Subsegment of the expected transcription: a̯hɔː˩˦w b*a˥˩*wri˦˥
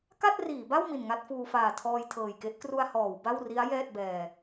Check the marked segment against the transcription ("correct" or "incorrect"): correct